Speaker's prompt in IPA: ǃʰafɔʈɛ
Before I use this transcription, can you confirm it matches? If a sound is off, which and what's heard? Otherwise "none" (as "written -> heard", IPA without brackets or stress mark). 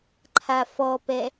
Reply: ʈ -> p